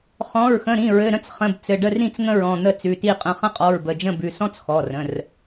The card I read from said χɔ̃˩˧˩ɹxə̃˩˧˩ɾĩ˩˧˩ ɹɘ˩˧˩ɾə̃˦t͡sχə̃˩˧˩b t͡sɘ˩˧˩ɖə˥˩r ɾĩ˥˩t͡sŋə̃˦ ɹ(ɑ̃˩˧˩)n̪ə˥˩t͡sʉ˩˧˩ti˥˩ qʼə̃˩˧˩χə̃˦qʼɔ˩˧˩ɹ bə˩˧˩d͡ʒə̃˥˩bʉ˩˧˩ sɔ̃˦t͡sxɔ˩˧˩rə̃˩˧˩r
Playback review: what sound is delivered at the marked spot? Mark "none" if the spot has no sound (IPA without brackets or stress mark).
ɔ̃˩˧˩